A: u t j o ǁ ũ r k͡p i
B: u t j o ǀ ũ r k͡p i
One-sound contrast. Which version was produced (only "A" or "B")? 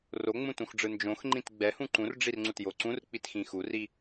B